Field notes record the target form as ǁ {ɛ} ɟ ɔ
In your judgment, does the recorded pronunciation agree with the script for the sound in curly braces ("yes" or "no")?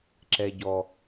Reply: yes